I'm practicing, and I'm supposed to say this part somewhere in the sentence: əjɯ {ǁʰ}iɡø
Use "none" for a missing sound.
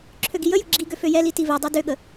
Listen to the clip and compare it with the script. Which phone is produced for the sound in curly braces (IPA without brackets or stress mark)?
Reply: ɡ͡ǁ